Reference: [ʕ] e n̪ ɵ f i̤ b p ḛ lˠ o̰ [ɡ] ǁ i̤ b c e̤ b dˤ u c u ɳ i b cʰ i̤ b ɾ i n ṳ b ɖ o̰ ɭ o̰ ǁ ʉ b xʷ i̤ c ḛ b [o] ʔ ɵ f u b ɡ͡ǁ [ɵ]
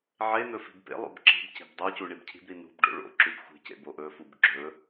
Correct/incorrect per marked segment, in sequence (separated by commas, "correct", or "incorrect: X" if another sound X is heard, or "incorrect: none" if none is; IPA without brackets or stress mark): correct, incorrect: b, correct, correct